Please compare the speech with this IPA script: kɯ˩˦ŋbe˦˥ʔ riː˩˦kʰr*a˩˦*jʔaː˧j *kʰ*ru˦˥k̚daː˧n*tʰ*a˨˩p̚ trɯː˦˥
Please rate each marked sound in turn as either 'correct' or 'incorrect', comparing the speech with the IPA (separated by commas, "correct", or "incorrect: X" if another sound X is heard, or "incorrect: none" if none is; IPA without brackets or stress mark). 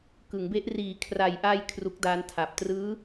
incorrect: a˨˩, correct, correct